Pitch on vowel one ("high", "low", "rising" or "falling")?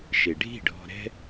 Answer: low